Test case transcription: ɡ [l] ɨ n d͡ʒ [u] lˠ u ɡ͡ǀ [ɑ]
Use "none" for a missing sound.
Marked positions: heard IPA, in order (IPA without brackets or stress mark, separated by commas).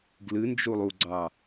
l, u, ɑ